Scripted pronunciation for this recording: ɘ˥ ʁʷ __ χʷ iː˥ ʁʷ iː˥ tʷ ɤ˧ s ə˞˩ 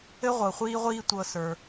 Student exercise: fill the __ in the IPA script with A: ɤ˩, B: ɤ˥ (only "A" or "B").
A